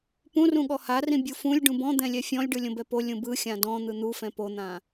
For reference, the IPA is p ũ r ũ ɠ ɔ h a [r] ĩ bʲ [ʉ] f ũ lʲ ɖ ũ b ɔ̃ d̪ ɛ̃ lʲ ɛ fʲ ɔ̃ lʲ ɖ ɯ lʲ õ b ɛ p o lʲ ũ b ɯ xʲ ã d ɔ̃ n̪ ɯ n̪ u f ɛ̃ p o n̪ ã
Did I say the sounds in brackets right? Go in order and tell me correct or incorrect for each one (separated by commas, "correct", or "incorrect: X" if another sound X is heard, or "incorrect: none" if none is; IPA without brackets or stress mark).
correct, incorrect: u